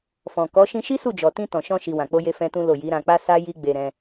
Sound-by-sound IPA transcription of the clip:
f ɔ̃˨ k ɔ˨˦ ʃ ĩ˦ ʃ i˦ s u˦˨ d͡ʒ ɔ˨ t ĩ˧ t ɔ̃˨ ʃ ɔ̃˧ ʃ i˨ w ã˨ k͡p o˧ j e˧ f ɛ̃˦ t ũ˦ l o˦˨ j i˨˦ ɾ ã˧ k͡p a˦ s a˦ j i˦ ɡ͡b e˧ ɾ ɛ̃˧

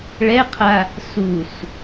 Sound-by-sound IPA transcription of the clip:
ɭ ɛ qʰ a | s u s

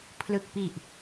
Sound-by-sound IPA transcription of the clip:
pʰ l ɯ˨˩ k̚ p i˨˩ ʔ

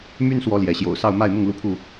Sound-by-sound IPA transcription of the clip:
m y˦ n s w ɔ˨˦ l j ɛ˨˦ ɕ j o̰˨˩ ʊ̯ s ɑ˥˨ ʊ̯ m a˥˨ ɪ̯ m ʊ˥˨ ŋ l u˥˨ pʰ u˥˨

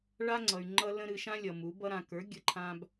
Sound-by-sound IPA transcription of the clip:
ɭ a˦ ŋ͡ǀ ʌ˨ y̯ ŋ͡ǃ ʌ˧ l ə̃˧ ɾ ɨ˨ ʃ ã˦ lʲ ʌ˨ m u˨˦ b ʌ˧ ɾ ã˨ k ə˞˨˦ ɡʲ ə˧ ǃʰ ã˦ b

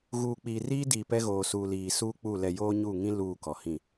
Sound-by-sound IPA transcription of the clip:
ɣ uː˨ k͡p iː˨ r iː˦ d iː˨ p ɛ˦ ɣ oː˨ s uː˨ l iː˨ s uː˦ k͡p u˦˨ l ɛ˦˨ j oː˦ ɲ uː˦˨ ŋ ĩ˦ l uː˦˨ k ɔ˨ h ĩ˦˨

